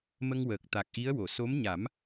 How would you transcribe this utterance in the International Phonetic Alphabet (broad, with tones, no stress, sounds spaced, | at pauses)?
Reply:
m ə˧ ŋ w əː˨˩ k̚ t̪ a˨˩ k̚ ʔ i˧˥ ə̯ w o˨˩˨ s o˧˥ m ɲ a˨˩˦ m